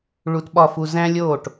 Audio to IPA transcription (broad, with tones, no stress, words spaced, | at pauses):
ɭu˧tɓɒ˥˩fu˧ zæ̃˥lʲoː˥˩ʈ